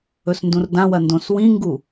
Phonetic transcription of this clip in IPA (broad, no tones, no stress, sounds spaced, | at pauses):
ɵ s n d ũ r d ã w ɐ n d õ s w ĩ ŋ ɡ u